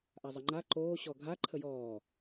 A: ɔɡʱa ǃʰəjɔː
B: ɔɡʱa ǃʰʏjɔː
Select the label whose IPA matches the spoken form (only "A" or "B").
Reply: A